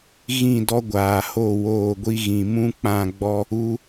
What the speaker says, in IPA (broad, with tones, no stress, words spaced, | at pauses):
ɣĩ˦˨dɔ˦ɡʷaː˨ho˦˨ woː˦˨ɡʷi˦ɣĩ˨ mũ˦ k͡pã˦˨ɡ͡bɔ˦ | u˦